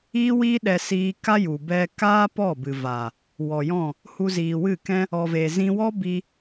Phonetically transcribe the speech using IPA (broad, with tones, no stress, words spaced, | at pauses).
iː˦wiː˦ɗɛ˧siː˧ ka˦ju˨ bɛ˧kaː˦ pɔ˦˨bɨ˨va˨ | wɔ˨jɔ̃˦˨ | hu˧ziː˨wɨ˦˨kɛ̃˦ | ɔ˨ve˨zĩ˧ wɔ˦bi˧